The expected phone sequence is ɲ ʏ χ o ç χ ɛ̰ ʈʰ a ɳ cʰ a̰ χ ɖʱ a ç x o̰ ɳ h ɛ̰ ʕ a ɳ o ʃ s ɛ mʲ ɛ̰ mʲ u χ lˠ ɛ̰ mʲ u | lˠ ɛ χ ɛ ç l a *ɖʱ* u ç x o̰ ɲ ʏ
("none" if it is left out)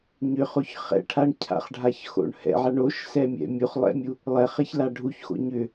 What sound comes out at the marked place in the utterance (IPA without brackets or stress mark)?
ɖʱ